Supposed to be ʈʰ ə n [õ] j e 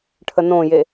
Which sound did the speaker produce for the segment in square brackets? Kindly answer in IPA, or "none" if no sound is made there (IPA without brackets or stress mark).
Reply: õ